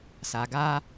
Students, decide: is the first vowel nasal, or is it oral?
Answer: oral